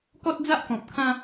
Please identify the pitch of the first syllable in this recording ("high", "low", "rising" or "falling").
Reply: high